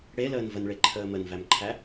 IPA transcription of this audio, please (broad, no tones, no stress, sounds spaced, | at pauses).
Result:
ɽ e l əː n v ə n ɭ e ǃʰ əː m ə n v æ m ǃʰ æ